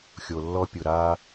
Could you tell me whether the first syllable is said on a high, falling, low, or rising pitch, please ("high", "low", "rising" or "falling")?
low